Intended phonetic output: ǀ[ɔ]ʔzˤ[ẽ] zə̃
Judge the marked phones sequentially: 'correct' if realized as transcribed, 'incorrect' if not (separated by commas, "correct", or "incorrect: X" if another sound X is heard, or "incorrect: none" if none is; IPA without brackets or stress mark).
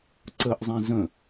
incorrect: ə, incorrect: ɛ̃